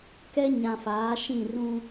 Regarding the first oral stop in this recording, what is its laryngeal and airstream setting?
plain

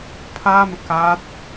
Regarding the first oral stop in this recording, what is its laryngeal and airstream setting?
aspirated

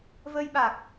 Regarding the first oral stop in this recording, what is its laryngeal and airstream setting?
implosive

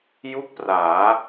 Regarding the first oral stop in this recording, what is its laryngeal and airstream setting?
plain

